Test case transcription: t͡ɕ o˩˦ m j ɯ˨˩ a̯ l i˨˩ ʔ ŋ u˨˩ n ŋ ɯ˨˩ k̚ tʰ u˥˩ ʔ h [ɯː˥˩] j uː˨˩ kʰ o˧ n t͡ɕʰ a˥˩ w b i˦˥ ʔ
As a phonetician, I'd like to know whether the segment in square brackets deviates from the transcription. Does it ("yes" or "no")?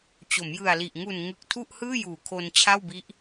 no